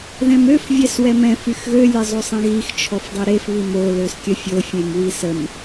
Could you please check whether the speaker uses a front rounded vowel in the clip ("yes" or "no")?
yes